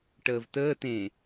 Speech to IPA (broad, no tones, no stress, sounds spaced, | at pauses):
ʈ əː v t əː t ẽː